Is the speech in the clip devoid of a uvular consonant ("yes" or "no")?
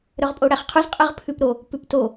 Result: no